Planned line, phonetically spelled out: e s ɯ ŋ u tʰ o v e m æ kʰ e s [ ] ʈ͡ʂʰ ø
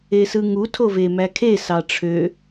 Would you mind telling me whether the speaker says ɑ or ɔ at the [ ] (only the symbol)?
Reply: ɑ